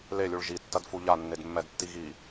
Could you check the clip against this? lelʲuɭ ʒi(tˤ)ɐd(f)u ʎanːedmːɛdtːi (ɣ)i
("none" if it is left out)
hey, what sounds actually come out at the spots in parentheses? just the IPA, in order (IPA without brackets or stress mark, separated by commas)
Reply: tː, f, ɣ